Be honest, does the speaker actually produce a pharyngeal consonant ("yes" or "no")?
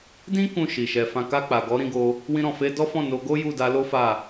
no